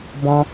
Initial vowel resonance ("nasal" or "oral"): nasal